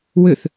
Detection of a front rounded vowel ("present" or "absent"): present